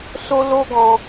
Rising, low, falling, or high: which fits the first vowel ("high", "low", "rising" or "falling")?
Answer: high